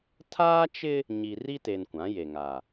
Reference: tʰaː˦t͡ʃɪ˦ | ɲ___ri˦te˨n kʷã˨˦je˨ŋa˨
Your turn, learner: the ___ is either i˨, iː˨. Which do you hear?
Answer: i˨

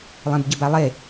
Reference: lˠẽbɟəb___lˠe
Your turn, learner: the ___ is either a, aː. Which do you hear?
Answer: a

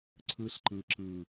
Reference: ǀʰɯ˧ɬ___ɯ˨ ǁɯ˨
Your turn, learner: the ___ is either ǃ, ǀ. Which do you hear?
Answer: ǃ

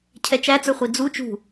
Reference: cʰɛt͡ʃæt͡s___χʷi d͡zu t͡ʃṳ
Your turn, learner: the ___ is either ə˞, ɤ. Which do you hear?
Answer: ə˞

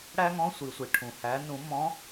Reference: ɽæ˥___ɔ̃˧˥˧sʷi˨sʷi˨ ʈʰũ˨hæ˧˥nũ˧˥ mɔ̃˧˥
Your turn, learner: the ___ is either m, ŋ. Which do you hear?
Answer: ŋ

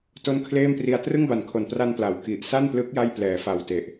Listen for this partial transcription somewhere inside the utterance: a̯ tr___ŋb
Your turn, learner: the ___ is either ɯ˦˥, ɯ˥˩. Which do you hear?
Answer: ɯ˥˩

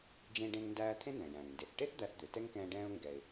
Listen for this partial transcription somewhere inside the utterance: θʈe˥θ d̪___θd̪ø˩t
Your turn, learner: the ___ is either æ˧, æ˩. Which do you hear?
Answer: æ˧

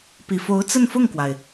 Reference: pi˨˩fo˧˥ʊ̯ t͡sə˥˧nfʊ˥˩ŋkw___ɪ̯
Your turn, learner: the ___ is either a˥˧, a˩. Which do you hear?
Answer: a˩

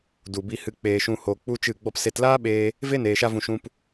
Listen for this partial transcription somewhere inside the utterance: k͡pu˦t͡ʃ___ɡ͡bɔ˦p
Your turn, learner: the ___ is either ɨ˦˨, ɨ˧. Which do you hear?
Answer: ɨ˦˨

